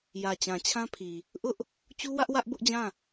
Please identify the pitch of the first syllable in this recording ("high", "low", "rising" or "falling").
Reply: low